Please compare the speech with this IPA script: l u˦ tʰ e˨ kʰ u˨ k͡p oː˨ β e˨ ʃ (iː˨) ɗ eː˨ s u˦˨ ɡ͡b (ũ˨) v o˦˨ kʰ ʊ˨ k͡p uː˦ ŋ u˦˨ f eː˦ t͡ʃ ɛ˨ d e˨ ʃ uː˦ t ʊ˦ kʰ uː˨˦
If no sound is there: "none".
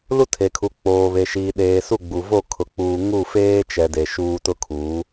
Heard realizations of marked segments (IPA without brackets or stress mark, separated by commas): iː˨, u˨